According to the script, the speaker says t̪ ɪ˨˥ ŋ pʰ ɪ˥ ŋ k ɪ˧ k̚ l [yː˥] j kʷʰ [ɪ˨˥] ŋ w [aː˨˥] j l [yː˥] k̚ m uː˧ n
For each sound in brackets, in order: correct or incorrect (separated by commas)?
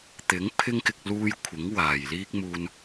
incorrect, correct, incorrect, incorrect